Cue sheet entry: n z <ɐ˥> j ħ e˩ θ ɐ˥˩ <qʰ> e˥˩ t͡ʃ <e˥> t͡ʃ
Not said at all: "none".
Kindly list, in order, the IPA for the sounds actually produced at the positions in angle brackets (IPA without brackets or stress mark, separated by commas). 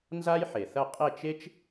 a˥, qʼ, e˥